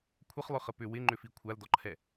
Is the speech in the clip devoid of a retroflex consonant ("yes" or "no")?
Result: yes